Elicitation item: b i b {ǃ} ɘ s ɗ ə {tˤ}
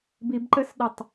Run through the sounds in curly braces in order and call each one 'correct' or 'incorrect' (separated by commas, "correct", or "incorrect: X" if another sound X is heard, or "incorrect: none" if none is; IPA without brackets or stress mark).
correct, correct